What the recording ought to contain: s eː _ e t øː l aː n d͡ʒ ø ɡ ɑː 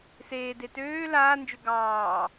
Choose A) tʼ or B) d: B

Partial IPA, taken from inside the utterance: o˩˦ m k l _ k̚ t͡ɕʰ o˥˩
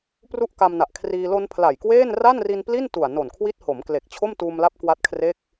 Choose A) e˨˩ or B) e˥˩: A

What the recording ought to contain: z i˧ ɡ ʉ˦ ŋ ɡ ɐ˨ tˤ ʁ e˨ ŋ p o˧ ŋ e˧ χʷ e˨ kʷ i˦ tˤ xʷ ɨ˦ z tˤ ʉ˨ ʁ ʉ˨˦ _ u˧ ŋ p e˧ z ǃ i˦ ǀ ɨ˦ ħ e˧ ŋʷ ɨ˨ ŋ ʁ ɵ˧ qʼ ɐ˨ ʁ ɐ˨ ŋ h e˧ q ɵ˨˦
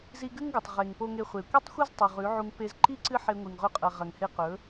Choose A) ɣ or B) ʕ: B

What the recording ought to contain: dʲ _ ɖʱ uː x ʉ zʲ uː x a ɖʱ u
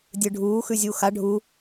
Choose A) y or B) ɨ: B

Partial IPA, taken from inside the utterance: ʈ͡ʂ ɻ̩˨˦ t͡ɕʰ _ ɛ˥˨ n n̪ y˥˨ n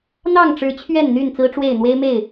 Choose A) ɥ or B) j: A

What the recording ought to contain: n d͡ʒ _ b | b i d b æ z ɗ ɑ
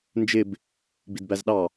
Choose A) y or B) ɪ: B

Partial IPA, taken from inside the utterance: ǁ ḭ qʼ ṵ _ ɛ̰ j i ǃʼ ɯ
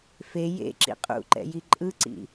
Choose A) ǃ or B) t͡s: A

